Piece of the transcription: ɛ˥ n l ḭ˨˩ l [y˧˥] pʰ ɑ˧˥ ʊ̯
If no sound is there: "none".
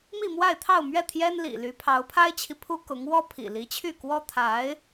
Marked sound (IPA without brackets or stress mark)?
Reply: y˧˥